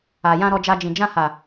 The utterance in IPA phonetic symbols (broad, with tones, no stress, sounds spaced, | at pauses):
a˨ j ã˧ ɾ ɔ˧ d͡ʒ a˧ d͡ʒ ĩ˨ d͡ʒ ã˧ h a˨